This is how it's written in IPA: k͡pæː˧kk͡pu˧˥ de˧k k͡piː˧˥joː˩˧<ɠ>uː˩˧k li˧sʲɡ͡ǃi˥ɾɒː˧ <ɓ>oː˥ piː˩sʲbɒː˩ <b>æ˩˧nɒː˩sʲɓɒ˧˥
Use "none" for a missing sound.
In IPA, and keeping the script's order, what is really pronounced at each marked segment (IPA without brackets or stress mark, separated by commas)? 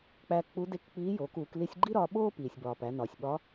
k, ɓ, p